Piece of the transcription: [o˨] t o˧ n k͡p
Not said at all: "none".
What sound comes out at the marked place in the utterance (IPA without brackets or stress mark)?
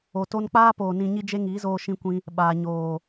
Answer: o˨